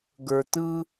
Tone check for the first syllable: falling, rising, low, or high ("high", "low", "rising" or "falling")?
low